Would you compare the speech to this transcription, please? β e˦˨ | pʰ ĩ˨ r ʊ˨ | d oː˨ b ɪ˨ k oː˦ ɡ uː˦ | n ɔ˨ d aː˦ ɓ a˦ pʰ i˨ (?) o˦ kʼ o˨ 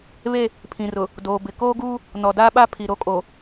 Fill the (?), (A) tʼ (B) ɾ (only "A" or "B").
B